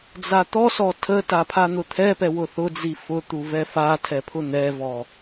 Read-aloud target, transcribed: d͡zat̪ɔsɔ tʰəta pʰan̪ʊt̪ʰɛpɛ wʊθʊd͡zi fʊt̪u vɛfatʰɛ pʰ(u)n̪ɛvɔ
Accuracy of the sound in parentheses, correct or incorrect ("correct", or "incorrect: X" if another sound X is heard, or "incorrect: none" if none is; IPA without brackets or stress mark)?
incorrect: ʊ